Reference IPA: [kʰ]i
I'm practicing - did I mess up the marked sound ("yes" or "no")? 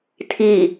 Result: yes